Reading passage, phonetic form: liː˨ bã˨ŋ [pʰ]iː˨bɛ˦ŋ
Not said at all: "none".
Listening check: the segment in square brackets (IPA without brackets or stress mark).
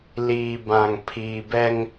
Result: pʰ